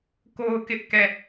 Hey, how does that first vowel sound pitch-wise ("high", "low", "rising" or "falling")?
high